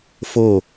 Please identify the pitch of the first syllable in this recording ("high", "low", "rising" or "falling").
falling